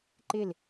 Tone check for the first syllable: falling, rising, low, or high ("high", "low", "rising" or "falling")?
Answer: falling